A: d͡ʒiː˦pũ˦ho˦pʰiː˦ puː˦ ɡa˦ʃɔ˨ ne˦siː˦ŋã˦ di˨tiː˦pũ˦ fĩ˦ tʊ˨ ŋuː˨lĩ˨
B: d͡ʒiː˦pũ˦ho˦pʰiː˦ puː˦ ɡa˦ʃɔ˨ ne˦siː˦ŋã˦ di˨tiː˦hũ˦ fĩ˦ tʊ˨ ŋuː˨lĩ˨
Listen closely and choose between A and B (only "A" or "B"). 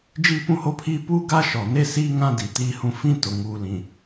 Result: B